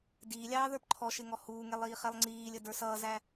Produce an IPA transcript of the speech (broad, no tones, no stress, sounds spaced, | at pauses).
d iː lʲ ɑː ð ə˞ p ǃʰ ɔ ʃ ɪ ŋ ɔ h uː ŋ ɛ lˠ iː χ ɛ lˠ ŋ͡ǀ iː lʲ ə d ə˞ s ʌː z æ